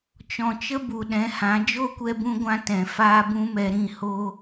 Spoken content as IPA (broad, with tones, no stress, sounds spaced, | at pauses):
t͡ʃ ɔ̃˨ t͡ʃ ə˦ b u˨ ɗ ɛ̃˨˦ h ã˨˦ d͡ʒ o˦ kʷ ɛ˧ b ũ˧ ɡʷ ã˧ t ɛ̃˨ f aː˦ b ũ˦ m ɛ˧ ɾ ĩ˦˨ h o˦